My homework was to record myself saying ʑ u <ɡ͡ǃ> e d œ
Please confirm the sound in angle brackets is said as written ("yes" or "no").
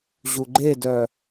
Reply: yes